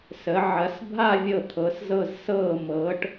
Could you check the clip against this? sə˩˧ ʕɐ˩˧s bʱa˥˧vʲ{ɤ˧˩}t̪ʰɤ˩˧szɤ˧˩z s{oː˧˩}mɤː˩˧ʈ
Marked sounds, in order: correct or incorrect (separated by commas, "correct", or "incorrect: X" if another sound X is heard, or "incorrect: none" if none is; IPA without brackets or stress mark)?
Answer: correct, incorrect: ɤː˧˩